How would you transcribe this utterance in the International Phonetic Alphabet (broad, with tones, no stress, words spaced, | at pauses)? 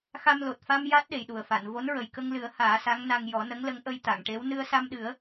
xa˧mlo˨˩t̚ fa˧m ja˦˥t̚ ɗe˨˩jɗu˨˩ə̯fa˨˩˨n vo˧˥nɹə˨˩j kə˧ŋlɨ˨˩˦ə̯ haː˨˩˦sa˧˥ŋna˧ŋ jɔ˨˩˦nə˧˥ŋ lə˧˥ŋʔə˧jt̪a˨˩˨ŋʈe˧˥w nɨ˧ə̯sa˧mɗɨ˨˩˦ə̯